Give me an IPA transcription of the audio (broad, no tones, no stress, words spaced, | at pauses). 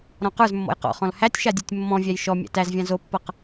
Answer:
ɾɔ̃qə˞zmːɔ̰j qɔ̰χɔ̃l hætʲʃa dʲɨtʲmːɔ̃vʲæj ʃɔ mʲæ̰tæzvʲã zopːɤq